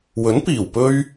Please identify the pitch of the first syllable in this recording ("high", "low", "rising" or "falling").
rising